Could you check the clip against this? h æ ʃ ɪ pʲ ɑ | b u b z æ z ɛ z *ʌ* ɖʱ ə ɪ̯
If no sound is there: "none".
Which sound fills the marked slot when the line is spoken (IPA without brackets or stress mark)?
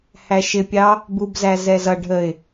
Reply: ʌ